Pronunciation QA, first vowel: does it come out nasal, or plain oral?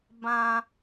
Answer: nasal